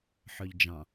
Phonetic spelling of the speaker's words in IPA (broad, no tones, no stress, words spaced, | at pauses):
ħœʎd͡ʒɑ̃